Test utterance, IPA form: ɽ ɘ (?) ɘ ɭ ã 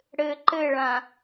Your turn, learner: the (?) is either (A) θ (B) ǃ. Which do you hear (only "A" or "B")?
B